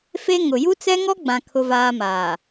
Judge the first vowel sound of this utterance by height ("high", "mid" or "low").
mid